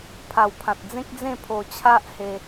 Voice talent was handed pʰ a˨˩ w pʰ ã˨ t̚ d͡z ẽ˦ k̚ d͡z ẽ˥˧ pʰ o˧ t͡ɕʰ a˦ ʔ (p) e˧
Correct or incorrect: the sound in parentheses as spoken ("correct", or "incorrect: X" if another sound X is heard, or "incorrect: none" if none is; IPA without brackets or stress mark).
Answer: incorrect: h